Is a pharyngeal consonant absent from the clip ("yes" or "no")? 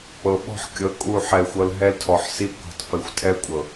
no